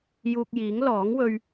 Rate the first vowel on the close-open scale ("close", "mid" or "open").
close